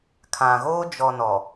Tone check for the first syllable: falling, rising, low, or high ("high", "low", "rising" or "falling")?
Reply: low